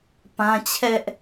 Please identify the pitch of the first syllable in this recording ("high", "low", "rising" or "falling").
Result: high